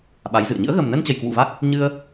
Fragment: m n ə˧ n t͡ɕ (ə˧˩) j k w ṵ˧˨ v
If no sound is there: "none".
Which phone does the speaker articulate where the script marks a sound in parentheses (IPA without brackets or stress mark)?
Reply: ə˧˩